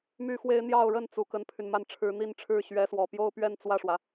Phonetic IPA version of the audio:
m y˥ x w e˥ ɪ̯ n̪ j ɑ˥˧ ʊ̯ ɻ ə˥˩ n t͡s u˧˥ k ə˥ n pʰ y˨ n m a˥˩ n ʈ͡ʂʰ ɻ̩˧˥ n̪ i˥˧ n ʈ͡ʂʰ ɻ̩˥˩ ɕ ɥ ɛ˧˥ s w ɔ˨˩ p j o˥ ʊ̯ p ɥ ɛ˥˧ n t͡s w ä˥˩ ʂ w ä˩

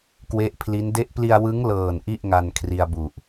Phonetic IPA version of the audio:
k w e˦˥ ʔ pʰ l i˦˥ n d e˦˥ ʔ p l i˧ a̯ w ɯ˦˥ ŋ l ɤː˨˩ n ʔ i˥˩ ʔ ŋ a˧ n kʰ r i˧ a̯ b u˨˩ ʔ

